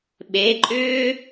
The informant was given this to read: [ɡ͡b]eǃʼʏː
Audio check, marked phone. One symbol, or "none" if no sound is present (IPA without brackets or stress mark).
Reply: ɓ